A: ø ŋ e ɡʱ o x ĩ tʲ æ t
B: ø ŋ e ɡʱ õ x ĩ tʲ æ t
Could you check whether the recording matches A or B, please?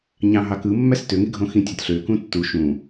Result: B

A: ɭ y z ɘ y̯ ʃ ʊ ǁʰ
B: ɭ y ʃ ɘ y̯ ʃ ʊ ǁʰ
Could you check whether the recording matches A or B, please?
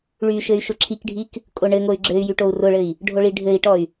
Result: B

